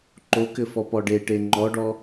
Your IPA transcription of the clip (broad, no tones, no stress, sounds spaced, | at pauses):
ǃ o k ɘ f ɔ p ɔ ɖ e ʈ e ŋ͡ǃ ɔ ɖ ɔ